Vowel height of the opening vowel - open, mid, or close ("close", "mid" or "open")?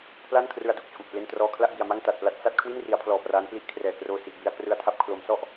open